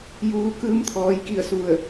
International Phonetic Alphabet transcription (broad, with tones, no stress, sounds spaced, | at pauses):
j uː˩˧ k ɯː˧ m t̪ʰ ɔː˩˧ j k i˥˨ ə̯ s u˧˩ ə̯